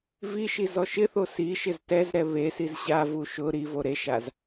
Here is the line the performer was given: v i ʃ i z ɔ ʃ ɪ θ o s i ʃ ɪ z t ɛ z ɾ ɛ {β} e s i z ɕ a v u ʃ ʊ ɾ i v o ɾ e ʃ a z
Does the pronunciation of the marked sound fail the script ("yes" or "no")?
no